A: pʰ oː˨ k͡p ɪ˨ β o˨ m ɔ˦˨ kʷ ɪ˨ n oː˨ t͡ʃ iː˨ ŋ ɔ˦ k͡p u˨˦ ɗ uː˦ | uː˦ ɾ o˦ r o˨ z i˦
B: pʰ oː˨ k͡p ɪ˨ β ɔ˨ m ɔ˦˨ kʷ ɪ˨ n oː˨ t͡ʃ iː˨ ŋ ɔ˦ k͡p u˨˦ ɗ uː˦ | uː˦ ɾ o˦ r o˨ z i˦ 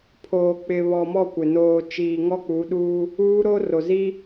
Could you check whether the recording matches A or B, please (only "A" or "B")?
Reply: B